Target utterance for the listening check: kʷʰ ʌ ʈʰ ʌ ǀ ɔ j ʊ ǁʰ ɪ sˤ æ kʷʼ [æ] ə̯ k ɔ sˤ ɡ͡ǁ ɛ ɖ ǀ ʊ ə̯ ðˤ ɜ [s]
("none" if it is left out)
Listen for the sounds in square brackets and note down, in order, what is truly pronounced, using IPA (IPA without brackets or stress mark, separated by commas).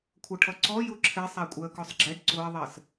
æ, s